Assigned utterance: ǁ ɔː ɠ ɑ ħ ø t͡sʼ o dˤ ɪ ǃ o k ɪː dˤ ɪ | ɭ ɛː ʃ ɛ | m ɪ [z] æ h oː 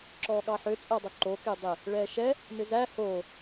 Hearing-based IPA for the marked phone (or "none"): z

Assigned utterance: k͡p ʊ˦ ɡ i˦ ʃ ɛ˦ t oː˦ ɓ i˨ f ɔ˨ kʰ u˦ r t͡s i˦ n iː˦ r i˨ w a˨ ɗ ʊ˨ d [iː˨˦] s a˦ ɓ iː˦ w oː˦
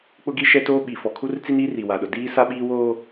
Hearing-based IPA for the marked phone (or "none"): iː˦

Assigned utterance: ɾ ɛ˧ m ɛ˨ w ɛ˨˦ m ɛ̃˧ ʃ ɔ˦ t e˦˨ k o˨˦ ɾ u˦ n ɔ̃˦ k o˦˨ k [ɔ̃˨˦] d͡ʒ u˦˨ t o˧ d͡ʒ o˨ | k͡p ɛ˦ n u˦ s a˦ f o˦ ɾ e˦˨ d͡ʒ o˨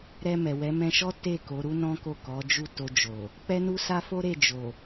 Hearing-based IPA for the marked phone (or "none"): ɔ˨˦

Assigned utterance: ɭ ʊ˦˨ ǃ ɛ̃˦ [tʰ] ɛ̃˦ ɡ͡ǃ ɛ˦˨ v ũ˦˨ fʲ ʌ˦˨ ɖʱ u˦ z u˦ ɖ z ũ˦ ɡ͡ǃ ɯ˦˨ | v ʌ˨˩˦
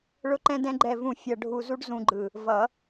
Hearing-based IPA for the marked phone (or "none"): d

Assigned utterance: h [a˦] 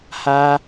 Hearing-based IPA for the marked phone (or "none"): a˦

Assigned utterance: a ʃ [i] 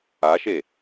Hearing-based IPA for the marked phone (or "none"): e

